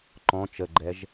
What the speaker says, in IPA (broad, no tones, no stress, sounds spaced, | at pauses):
ǃ ɔ̃ t͡ʃ ə ɡ͡ǃ ɛ ʒ